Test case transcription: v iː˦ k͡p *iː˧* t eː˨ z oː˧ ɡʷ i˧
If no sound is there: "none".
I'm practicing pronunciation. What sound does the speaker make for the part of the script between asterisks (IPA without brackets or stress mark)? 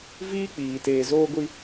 iː˨